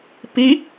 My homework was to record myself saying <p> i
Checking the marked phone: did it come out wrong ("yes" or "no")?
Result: no